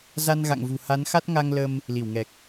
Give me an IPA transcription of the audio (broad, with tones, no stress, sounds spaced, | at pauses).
z a˧ n ɣ a̰˧˨ ŋ v ṳ˨˩ h a˨˦ n x a˦˥ t̚ ŋ a˧ ŋ l ə˧ m | l i˧˩ w ŋ ɛ˨˩ k̚